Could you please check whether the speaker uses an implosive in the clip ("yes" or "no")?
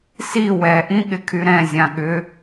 yes